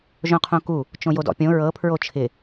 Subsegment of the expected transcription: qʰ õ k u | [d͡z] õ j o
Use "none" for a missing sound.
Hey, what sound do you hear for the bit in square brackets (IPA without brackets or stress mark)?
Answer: t͡ʃ